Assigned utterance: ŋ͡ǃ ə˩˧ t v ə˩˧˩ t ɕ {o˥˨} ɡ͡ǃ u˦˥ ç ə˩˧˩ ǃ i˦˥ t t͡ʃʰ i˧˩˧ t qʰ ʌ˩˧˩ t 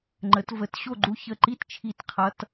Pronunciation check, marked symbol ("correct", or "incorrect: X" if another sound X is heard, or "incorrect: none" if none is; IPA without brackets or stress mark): correct